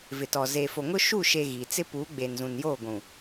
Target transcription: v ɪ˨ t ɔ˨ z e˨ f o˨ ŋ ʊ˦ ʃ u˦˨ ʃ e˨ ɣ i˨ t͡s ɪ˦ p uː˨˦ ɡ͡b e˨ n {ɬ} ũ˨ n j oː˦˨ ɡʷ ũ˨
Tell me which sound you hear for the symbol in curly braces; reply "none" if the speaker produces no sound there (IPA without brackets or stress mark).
z